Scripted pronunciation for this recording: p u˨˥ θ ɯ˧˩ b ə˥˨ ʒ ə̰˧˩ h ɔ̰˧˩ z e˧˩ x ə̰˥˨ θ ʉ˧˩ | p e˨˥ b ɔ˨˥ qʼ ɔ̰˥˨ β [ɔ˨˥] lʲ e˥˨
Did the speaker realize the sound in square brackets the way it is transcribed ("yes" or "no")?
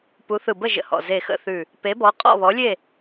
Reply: yes